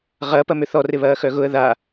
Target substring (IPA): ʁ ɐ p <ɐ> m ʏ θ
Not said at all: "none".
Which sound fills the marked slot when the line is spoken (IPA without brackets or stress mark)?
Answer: ɐ